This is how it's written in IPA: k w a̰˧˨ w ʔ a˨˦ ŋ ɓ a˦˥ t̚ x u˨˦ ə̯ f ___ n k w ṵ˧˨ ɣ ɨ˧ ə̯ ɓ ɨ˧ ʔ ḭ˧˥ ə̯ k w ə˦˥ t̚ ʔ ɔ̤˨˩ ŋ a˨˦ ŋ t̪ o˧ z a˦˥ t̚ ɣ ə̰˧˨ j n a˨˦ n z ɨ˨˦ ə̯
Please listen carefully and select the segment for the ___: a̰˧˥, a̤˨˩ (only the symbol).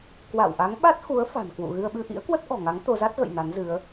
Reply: a̤˨˩